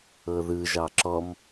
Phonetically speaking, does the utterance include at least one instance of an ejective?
no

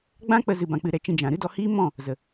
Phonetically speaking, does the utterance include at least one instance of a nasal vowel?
yes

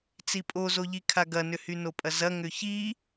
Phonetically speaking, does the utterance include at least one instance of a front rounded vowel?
yes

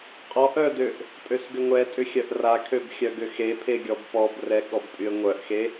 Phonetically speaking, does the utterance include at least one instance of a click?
no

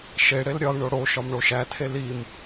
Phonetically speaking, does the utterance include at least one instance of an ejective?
no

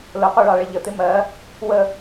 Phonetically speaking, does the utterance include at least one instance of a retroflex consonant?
yes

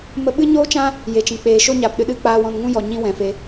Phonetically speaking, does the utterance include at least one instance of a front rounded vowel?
no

